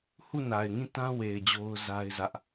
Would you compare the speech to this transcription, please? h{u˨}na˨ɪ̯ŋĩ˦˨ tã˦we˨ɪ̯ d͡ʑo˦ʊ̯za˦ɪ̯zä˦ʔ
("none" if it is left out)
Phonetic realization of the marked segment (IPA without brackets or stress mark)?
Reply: u˦˨